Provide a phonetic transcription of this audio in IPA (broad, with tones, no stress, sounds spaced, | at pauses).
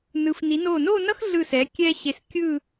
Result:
n ɯ˩˧ f n i˩˧ n o˧˩ n o˥˧ n ʌ˥ x ɮ ɯ˧˩ s ɛ˩˧ kʲ ɛ˧ ɕ e˧˩ s kʲ ɯ˥˧